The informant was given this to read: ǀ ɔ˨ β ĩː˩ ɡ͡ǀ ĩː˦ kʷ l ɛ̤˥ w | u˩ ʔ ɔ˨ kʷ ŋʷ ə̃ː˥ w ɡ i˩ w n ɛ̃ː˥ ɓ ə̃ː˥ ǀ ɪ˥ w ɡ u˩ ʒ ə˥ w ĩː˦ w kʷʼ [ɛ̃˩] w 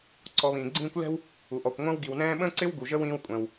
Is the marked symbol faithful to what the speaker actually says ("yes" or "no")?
yes